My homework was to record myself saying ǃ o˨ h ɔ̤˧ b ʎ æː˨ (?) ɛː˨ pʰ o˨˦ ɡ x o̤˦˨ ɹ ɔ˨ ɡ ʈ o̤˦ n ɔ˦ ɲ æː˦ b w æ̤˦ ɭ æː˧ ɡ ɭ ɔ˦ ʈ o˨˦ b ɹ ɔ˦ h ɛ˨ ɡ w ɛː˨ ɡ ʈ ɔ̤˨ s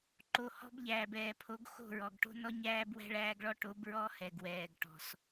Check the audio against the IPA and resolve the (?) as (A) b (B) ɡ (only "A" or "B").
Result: A